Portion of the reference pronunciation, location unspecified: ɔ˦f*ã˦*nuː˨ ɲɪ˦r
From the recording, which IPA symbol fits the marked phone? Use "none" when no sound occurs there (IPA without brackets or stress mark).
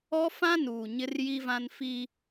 ã˦